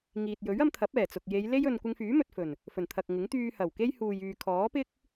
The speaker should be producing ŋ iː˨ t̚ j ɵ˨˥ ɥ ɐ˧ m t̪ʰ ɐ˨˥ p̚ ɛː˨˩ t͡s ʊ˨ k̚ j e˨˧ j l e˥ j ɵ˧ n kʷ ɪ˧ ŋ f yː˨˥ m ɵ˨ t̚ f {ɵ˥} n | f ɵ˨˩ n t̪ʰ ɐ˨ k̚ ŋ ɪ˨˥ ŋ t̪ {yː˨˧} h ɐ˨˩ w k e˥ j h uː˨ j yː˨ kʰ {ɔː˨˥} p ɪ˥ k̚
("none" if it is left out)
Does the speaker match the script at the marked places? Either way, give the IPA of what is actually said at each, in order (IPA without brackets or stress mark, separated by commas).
ɵ˨˩, yː˧, ɔː˨˥